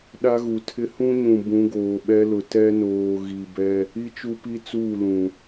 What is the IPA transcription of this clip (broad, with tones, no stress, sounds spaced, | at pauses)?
ɗ a˦ ɣ u˨ tʰ ɪ˦ h ũ˦ ɲ ũ˨ b ũ˨˦ ɡ oː˨ ɓ ɛ˦ l ʊ˨ t ɛ˦ n oː˨ ɣ i˨ b ɛ˦ | i˦ t͡ʃ u˦ p i˦ t͡s uː˦˨ l ũ˨